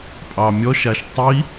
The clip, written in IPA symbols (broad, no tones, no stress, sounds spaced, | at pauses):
pʼ ɑ mʲ ɔ ʃ a ʃ tˤ i